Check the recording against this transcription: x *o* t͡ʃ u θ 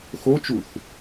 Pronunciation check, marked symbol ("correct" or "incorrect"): correct